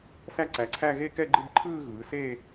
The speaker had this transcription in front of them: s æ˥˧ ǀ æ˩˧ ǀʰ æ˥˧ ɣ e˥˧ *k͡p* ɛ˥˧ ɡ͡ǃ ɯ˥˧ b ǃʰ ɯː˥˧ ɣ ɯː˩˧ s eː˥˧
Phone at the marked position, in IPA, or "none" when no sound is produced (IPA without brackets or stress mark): k